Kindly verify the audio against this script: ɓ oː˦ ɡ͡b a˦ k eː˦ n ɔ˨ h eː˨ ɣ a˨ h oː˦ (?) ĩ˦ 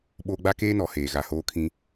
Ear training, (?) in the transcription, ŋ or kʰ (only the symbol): kʰ